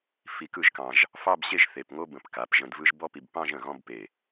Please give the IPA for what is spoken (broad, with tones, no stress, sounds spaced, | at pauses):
f i˧ k ɯ˥˧ ʒ k ɑ̃˧ ʒ | f ɑ˥˧ b ɕ e˥˧ ʒ θ e˧˩ p ŋ o˥ b ə̃˧˩ p k a˩˧ p ʒ ə̃˧ d v ɯ˥ ʒ b ɔ˥ p i˧ b p ɑ̃˥˧ ʒ ə̃˧˩ ɣ ɔ̃˥˧ b p e˧˩